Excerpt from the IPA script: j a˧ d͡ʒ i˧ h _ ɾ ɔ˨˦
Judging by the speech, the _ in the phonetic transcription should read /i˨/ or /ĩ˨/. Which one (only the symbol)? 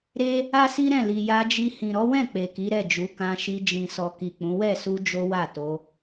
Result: ĩ˨